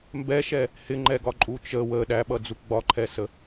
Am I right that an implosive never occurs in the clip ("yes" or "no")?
no